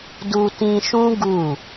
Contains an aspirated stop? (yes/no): no